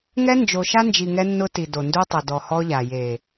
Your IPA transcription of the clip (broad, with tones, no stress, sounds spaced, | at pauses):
ŋ ɛ˦ n d͡ʒ o˨ ʃ a˦ n d͡ʒ i˨ ŋ ɛ˦ nː ʊ˦ t i˨ d o˨ n d u˦ tˤ ʊ˨ d ɔ˨ h ɔ˦ ʎ a˨ j e˨